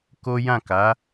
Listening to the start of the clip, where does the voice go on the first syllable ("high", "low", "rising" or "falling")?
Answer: high